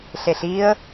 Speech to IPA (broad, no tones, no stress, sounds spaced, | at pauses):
ɬ e ɬ i ə̯